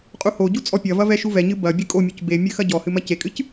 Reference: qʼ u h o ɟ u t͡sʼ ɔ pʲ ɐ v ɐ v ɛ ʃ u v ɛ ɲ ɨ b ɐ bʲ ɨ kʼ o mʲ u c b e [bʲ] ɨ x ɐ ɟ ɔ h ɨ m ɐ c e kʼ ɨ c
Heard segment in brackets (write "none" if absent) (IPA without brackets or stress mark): mʲ